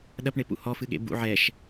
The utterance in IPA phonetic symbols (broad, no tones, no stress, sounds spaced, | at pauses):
ɗ ɐ p ɳ e p ṵ h ɔ f ɨ ɠ ḛ b ṵ ʕ ɛ ʃ